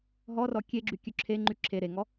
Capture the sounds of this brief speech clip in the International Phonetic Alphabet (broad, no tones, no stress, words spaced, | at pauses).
ɦɔrɔ kʲeɡ͡ǁy kʲʉǁʰeŋ͡ǃy ǁʰe ɾeŋɔ